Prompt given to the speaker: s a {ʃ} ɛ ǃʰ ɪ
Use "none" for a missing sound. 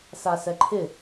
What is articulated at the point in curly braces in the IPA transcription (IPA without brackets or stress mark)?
s